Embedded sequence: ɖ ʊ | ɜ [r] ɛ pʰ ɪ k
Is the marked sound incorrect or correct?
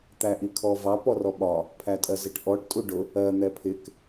incorrect